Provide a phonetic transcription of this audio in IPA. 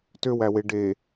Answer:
t ø w æ w e ɖ e

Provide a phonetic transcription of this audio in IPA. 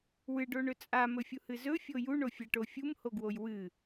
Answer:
w ɨ ɖ o ɳ ɵ t͡sʼ a m ɵ fʲ u h ɨ z ɵ fʲ o j u ɳ o fʲ a ʈ o fʲ u m h o ɡ w o j w ɨ

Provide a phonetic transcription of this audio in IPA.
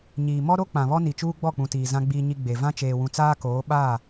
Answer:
ɲ iː˨ m ɔ˦ ɾ o˦ k͡p ã˨ β ɔ˦ n i˨ t͡ʃ uː˦ ɡ͡b ɔ˦˨ k͡p ũ˨ t iː˨ z ã˦ ɡ͡b iː˦ ɲ i˦ ɡ͡b e˨ v ã˦ t͡ʃ eː˨ w ũ˨ t͡s aː˦ k oː˨˦ ɓ a˦˨

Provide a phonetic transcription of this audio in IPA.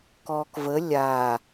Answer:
k ɔː k v ə lʲ a

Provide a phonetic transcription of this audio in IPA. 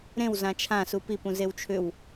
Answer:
ɾ ẽ w z ã t͡ʃʰ ã s u p i p ũ z e w t͡ʃʰ ʏ w

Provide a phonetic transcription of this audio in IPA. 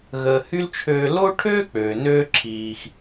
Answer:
ɣ əː˦ h y˥ l t͡ʃʰ øː˦ l o˥ ʈʰ øː˥ k͡p øː˨ n øː˦ ǁʰ iː˦ x

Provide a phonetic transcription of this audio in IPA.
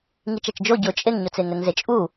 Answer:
ŋ i t͡ʃ a t͡ʃ d͡ʒ o ɟ ʊ t͡ʃʼ e ŋ ɲ ʊ t͡s e ŋ ɛ ŋ z e t͡ʃʼ u

